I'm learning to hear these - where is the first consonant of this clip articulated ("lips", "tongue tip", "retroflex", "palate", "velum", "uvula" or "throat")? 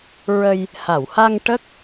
tongue tip